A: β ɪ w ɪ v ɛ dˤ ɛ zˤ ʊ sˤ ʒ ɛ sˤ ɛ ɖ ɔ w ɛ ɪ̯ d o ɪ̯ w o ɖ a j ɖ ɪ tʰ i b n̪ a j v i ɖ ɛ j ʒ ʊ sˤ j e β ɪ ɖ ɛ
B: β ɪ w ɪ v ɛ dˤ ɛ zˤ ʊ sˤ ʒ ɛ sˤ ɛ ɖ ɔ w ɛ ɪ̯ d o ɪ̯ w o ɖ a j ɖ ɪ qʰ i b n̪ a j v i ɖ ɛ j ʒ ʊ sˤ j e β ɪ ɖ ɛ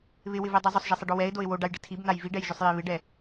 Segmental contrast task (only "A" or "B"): A